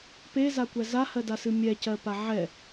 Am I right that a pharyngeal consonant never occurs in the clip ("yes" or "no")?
no